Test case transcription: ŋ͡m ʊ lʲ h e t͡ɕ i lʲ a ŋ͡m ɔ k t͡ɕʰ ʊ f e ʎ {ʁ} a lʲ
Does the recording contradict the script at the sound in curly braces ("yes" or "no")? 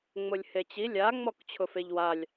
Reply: yes